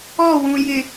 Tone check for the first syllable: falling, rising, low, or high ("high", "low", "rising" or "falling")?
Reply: falling